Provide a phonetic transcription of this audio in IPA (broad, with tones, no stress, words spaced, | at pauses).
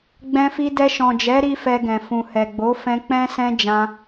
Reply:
ɡ͡bɛ̃˧fi˧ dɛ˧ʃɔ̃˨d͡ʒɛ˨˦ɾi˧ fɛ˧ɡɛ̃˨fũ˨hɛ˨ ɡ͡bo˨˦fɛ̃˧k͡pɛ̃˦ sɛ̃˦d͡ʒã˧